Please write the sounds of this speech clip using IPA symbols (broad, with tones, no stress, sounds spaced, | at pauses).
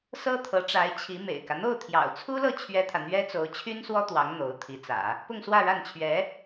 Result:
s ɤ˥ t̪ʰ ɤ˧˥ ʈ͡ʂ a˧˥ ɪ̯ t͡ɕʰ i˧˥ m ḛ˨˩ ɪ̯ k ä˦ n̪ o˥˩ ʊ̯ t̪ʰ j ɑ̰˨˩ ʊ̯ t͡sʰ u˥ l ɤ˥˩ t͡ɕʰ ɥ ɛ˥ t̪ʰ ä˨ n̪ ɥ ɛ˥ t͡s o˧˥ ʊ̯ t͡ɕʰ y˥ n s w ɔ˥ t̪ w ɑ˧˥ ŋ n̪ o˧˥ ʊ̯ t̪ʰ i˧˥ t͡s ä̰˨˩˦ | p ʊ˥˧ ŋ s w ä˥˧ ɻ a˥˩ n t͡ɕʰ ɥ ɛ˧˥